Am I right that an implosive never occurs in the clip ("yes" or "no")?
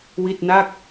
yes